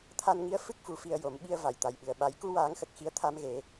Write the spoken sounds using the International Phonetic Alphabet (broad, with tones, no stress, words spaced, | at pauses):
t̪ʰa˧nŋi˧˥ə̯ fɨ˦˥k̚fu˨˩ fi˧ə̯jo˨˩˦mɓi˧ə̯ va˨˩˨jt̪a˨˩jɓɨ˨˩ə̯ ɓa˨˩˦jku˧waː˨˩˦ŋxə˨˩k̚ xi˧˥ə̯t̪ʰa˧˥mɣe˨˩˦